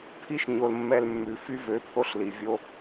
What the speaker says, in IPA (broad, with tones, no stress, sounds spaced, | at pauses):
pʰ i˦ ʃ ɲ o˨ l mː ɛ˧ l mː ʉ˨ f y˦ v ø˨˦ pʰ o˦ ɬ l i˨ vʲ o˦